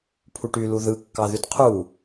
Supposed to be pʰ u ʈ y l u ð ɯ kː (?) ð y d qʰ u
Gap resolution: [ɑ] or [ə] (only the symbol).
ɑ